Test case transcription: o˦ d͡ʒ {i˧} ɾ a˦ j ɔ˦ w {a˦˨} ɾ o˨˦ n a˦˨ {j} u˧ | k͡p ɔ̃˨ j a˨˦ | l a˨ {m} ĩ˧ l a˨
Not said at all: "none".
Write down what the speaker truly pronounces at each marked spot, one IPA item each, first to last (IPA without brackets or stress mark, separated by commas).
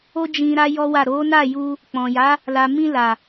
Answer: ĩ˧, a˦˨, j, m